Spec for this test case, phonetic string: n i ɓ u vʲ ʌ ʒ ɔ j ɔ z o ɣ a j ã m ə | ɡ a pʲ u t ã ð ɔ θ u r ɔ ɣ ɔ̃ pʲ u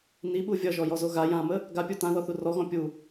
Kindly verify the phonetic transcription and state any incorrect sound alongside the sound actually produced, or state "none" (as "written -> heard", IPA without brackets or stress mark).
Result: none